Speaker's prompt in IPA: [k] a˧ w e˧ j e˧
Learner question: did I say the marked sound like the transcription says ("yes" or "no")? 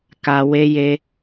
yes